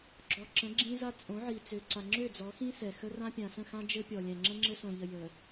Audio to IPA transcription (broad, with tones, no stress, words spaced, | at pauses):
ɡ͡ǁɔ˨ǁə̃˨˦ ɡ͡ǁĩ˦za˦ t͡sʼõ˨˦ʕi˨t͡sø˨ ǀa˨ŋ͡ǁø˦˨d͡zɔ˨˦xĩ˦ sɛ˨ xə˦ rã˦pʲã˨sə̃˦˨xã˦ d͡ʒɘ˦pʲɔ˨lʲɛ̃˨ ŋ͡ǁə̃˦ŋ͡ǁɘ˦sõ˨ʎə˨ jə˨